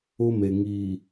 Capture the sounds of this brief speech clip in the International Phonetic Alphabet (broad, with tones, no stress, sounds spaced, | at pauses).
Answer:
ʊ˦ m e˨ ŋ iː˨